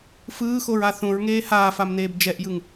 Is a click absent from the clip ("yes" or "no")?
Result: yes